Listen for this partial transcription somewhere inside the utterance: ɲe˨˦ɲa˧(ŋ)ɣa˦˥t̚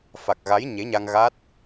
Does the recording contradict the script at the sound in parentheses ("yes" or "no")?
no